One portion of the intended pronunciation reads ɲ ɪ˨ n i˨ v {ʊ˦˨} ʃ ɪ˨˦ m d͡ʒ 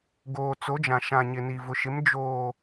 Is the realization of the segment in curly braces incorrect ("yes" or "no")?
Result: yes